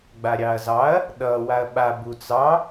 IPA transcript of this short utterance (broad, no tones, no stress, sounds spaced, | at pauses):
ɡ͡b a ɾʲ ɑ ɐ̯ z ɑ ɐ̯ | ɗ ʌ w a ɐ̯ ɓ a b u t͡s ɑ